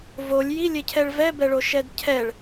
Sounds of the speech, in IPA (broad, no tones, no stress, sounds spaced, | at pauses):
v o lʲ j i lʲ e cʰ ɛ ɭ v ɛ b ɛ ɭ o ʃ ɛ d cʰ ɛ ɭ